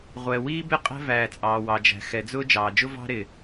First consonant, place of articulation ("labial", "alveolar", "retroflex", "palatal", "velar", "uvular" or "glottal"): uvular